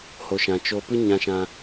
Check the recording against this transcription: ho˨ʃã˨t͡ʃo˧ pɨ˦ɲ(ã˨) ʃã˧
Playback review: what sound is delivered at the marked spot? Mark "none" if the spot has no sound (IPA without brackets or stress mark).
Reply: ã˧